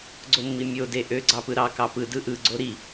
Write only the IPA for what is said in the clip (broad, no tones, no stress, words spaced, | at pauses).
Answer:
ɡ͡ǀomːimʲo deʔø ɡ͡ǀɑpɯɾɑ kɑpɯ dɯʔɯ ɡ͡ǀoɾi